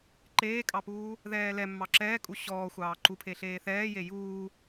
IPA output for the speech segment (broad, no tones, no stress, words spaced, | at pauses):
ǃeːkʼɑpuː | ðɛːlɛmːɑ ǁɛːkʼu ɕɔːxʷɑː ǃupʰe ɬeːθɛːje juː